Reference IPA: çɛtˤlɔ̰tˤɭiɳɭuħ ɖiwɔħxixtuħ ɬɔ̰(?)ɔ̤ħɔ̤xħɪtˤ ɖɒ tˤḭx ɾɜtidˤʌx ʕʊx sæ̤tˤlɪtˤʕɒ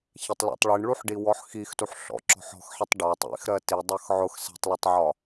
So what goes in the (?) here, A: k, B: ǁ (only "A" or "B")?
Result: B